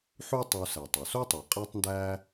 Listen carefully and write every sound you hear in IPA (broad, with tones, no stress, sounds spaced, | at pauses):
ħ u˦ tˤ u˨ s æ˩ tˤ o˩ s o˥ tˤ u˩ qʼ æ˦ tˤ n d æː˦